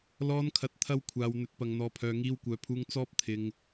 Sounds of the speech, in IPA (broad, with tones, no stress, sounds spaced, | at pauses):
l ɔː˧ n kʰ ɐ˨˥ t̚ t̪ʰ ɐ˥ w kʷʰ aː˧ w n̪ ɵ˨˥ t̚ p ɐ˨ ŋ n̪ ɔː˨ pʰ œː˨ ŋ iː˧ w kʷ œː˨˥ pʰ uː˧ ŋ t͡s ɔː˥ p̚ t̪ʰ ɪ˧ ŋ